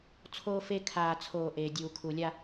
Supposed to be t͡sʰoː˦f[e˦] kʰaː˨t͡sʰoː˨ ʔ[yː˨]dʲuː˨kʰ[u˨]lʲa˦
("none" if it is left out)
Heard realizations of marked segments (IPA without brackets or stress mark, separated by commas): e˦, eː˨, u˨